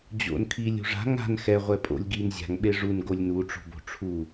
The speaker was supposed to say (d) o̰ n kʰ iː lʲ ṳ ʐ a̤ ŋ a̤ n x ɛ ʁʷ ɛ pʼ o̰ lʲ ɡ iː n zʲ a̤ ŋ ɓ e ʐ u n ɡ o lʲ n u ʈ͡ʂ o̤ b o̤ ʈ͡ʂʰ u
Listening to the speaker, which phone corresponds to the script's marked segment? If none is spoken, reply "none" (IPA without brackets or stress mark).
d͡ʑ